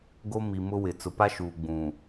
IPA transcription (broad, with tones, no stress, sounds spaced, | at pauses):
ɡ o˦ m i˨ m ʊ˦ w ɪ˨ t͡s ʊ˨ p a˦ ʃ uː˨ ɡ͡b ũ˨